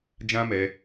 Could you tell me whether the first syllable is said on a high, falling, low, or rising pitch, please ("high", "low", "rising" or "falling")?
high